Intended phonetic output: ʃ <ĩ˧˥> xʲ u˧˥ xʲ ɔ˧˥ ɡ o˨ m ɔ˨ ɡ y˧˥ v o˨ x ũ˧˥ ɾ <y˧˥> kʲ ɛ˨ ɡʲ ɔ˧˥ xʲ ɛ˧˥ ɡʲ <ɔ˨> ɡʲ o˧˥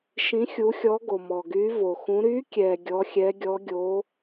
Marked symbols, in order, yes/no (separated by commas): yes, yes, no